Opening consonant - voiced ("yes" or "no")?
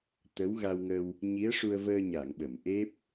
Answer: no